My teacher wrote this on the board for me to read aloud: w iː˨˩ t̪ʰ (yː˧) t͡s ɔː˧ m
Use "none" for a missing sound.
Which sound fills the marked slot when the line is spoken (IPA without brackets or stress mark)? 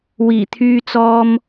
yː˧